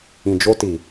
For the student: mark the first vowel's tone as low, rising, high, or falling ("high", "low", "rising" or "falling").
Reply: low